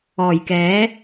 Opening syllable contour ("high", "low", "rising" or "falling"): low